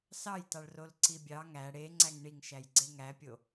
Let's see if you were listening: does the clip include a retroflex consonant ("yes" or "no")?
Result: yes